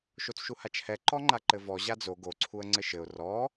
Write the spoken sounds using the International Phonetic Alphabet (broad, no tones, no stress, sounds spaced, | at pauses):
ʃ o t͡s ʃ u h a t͡ʃ h ɛ ǃ ɔ ŋ͡ǃ a ǃ ɘ v ɔ ʑ a d͡z o ɡ o ǀʰ u ə̯ ŋ͡ǀ ɘ ʃ ɘ ʊ̯ r ɔ